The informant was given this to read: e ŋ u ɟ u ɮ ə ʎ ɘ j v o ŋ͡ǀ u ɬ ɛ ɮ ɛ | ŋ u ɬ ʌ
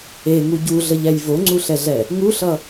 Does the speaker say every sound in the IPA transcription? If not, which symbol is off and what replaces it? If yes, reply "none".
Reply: ɘ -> ɛ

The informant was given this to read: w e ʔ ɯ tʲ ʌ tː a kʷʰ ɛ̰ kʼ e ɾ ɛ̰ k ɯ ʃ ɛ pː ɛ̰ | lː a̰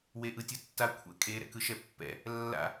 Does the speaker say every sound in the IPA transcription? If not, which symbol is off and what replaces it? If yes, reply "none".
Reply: none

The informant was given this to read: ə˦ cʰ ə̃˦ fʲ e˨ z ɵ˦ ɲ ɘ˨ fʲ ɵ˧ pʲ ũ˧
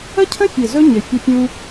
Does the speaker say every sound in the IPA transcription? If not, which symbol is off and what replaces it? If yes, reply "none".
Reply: none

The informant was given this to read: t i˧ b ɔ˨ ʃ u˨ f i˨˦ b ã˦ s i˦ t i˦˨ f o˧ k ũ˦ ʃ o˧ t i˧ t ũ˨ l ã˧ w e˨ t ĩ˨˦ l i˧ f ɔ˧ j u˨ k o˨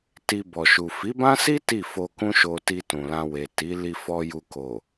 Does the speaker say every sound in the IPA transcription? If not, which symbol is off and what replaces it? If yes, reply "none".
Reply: ĩ˨˦ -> i˨˦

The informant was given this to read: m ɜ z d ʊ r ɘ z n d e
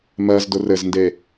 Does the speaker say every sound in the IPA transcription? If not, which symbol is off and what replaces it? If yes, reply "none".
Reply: none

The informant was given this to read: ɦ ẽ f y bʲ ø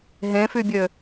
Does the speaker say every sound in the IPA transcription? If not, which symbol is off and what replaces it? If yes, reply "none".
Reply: none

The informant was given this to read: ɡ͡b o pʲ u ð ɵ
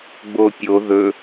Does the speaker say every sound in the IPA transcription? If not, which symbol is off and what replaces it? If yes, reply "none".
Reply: u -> o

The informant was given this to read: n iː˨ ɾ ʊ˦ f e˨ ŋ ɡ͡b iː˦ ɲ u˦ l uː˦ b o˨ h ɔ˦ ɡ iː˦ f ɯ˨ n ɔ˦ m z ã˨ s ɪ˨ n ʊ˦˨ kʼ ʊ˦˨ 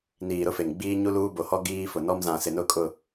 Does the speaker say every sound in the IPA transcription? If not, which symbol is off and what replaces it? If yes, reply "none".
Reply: ɯ˨ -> ʊ˨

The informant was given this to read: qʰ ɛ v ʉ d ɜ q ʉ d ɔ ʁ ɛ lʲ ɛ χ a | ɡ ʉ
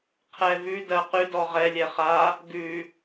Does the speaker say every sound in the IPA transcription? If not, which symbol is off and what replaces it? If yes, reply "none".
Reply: none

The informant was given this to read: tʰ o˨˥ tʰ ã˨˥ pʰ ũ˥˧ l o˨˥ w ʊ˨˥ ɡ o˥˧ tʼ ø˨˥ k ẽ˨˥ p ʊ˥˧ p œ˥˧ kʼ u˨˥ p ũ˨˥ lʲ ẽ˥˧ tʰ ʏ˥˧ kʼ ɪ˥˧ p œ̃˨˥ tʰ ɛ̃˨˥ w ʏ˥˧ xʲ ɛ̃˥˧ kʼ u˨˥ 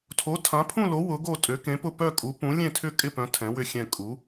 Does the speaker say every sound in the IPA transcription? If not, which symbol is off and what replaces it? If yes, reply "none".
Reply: none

